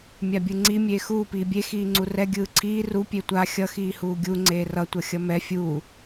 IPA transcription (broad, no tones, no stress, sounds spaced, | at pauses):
mʲ a bʲ ɯ ŋ͡ǀ i mʲ eː x uː p iː bʲ e x iː ŋ͡ǀ u r ɛ ɡʲ ɯː ǀʰ iː r u pʲ e tʷ a xʲ ʌ x iː h uː ɡʲ u ŋ͡ǀ eː r ʌ tʷ ʌ xʲ ʌ m ɛ fʲ u